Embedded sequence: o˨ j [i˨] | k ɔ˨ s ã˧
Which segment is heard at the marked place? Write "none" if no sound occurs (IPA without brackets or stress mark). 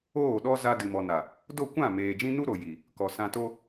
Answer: i˨